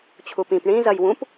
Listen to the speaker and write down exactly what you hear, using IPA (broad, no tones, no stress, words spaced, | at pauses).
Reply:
t͡ɕʰupĩp ɳĩ zɐjwũp